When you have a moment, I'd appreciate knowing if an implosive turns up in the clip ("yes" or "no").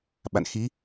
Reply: yes